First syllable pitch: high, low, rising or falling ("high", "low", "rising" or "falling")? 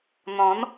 rising